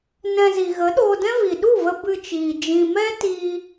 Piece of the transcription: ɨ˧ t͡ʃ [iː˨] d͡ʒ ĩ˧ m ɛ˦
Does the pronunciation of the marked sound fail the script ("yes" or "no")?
no